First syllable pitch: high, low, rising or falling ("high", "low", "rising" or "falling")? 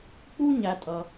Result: high